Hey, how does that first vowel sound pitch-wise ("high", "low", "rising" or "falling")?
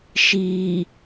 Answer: low